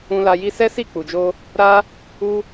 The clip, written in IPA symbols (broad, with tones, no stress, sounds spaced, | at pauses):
ũ˧ l a˧ j i˦ s ɛ˦ s i˦˨ k͡p u˨ d͡ʒ o˧ | ɾ a˦ | u˦